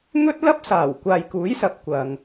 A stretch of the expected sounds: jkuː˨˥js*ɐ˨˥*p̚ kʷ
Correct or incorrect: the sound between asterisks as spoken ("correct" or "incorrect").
incorrect